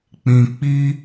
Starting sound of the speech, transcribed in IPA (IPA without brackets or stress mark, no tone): k͡p